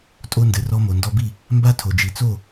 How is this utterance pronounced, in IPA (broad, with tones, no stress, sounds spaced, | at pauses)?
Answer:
tʼ o˧ n d ɘ˨ r ɔ˧ m o˨ n d ɔ˧ b i˦˨ | m b a˦ tʰ o˨ d͡ʒ i˨ t͡s o˦˨